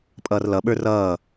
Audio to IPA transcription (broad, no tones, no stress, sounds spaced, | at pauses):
pʼ ʌː r l ʌ ɓ ə˞ r ʌː